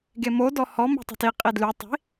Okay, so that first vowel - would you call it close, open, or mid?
mid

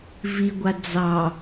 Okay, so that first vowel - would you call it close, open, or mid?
close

